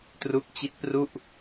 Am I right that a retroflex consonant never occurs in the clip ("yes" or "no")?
yes